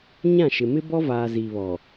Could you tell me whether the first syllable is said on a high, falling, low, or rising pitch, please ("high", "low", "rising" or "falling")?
falling